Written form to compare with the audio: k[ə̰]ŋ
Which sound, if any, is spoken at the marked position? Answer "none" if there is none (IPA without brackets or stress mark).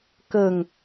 ə